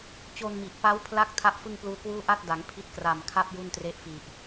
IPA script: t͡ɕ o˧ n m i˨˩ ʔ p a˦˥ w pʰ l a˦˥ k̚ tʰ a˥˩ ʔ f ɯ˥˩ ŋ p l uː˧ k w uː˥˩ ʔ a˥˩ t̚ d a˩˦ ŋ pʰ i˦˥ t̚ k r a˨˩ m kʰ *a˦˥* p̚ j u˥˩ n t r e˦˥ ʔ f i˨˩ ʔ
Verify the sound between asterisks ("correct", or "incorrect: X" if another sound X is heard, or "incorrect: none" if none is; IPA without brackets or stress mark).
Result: incorrect: a˥˩